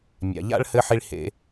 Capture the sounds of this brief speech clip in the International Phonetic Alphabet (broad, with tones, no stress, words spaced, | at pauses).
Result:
mʲa̰˨ʎa̰˦ɭ hɘ˦ħi˦ɭ hḛ˦